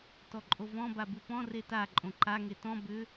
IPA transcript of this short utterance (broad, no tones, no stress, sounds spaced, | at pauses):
t ɔ ǃʼ o v ɔ̃ b a b u p ɔ̃ r e t a ǃʼ õ ǃ a ŋ e t ɔ̃ b ʏ